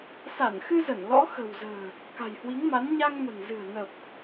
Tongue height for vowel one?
low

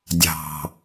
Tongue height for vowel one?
low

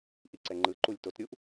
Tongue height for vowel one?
high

